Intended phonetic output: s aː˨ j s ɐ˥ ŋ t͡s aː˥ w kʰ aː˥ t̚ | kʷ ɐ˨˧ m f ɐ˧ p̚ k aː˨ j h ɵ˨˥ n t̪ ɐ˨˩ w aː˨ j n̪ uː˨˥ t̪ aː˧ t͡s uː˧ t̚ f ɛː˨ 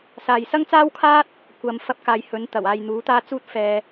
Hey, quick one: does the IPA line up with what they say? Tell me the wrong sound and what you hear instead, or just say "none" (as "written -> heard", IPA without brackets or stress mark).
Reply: none